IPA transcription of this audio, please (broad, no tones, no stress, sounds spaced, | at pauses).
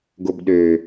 ɡ o b ɗ ø